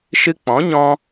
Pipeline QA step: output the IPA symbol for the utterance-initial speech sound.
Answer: ʃ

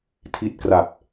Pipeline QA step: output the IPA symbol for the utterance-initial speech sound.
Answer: tʰ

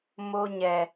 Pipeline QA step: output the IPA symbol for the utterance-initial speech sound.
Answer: m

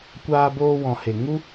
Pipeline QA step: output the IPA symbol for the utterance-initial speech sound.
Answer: kʷ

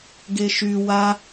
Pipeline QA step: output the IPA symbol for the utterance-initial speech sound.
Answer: ɡ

